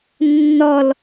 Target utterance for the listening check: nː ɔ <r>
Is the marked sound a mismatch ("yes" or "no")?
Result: yes